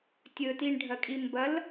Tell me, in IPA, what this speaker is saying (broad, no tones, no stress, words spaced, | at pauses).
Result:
tʲɵtiɳɖʱɐkʼi mbɐl